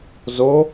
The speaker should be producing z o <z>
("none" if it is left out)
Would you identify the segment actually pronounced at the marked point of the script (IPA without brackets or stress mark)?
none